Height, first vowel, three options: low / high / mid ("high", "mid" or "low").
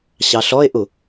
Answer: low